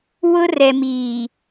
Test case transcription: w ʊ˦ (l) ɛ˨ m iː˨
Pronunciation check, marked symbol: incorrect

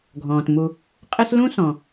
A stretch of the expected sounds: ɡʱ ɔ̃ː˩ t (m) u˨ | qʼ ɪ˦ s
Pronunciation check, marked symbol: correct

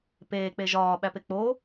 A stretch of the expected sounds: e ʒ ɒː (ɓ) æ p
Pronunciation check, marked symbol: correct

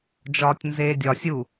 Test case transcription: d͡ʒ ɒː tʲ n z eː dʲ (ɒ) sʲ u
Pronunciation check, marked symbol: correct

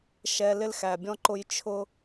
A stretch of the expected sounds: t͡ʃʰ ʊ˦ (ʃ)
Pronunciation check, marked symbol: incorrect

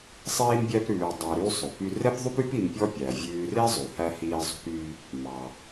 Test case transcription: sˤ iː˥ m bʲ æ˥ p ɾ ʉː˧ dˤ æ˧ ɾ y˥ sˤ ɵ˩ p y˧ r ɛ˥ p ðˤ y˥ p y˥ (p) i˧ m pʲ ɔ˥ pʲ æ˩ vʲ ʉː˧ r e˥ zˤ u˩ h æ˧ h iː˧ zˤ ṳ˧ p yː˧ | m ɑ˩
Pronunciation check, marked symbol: correct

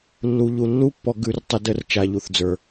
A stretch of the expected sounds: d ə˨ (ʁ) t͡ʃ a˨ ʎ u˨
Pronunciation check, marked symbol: incorrect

